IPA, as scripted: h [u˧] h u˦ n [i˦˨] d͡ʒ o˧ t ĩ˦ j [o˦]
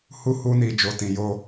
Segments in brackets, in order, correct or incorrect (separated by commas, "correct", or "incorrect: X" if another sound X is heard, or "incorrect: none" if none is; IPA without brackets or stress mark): incorrect: u˦, incorrect: i˧, correct